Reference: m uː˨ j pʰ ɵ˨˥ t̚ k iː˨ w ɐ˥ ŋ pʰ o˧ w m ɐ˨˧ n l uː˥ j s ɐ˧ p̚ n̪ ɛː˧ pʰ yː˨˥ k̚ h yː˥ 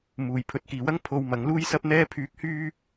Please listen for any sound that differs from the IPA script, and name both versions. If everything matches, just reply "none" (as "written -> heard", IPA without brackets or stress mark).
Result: n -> ŋ